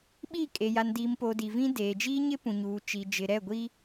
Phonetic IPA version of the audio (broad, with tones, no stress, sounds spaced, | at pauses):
ɓ i˦˨ kʼ e˨ j a˨ n d iː˨ m p o˨ d i˨ v ĩ˦ d eː˨ d͡ʒ iː˦ ɲ ɪ˦ p ũ˨ ɲ uː˨ t͡ʃ i˨ d͡ʒ ɪ˨ ɾ ɛ˦˨ ɡʷ iː˦